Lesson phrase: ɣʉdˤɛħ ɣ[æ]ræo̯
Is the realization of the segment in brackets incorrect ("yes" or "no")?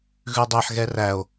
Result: yes